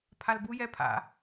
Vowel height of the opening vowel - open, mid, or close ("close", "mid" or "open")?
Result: open